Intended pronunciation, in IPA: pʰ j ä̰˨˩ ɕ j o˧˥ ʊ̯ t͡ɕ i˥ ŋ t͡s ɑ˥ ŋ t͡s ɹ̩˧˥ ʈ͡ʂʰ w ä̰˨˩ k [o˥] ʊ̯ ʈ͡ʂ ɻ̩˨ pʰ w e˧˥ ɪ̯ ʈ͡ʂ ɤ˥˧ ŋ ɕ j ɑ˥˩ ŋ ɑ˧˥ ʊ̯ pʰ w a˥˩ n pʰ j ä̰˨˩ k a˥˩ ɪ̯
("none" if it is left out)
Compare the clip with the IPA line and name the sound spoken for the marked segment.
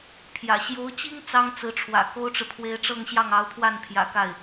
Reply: o˥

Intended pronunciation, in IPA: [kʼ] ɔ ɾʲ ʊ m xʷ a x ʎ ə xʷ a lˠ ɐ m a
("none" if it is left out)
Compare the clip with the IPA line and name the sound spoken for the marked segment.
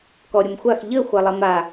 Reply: k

